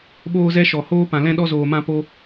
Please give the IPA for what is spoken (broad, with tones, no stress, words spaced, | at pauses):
ɓoː˦zɛ˦ ʃɔ˨ hoː˦pã˨ lɛ̃˦ɗɔ˦zoː˨ mã˦po˦